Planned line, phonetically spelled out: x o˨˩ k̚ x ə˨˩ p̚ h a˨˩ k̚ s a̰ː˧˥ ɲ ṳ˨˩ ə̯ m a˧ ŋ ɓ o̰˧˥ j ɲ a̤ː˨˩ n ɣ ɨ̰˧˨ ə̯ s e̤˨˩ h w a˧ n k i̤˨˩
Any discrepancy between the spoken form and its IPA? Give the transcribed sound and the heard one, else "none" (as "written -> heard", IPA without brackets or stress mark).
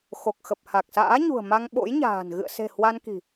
none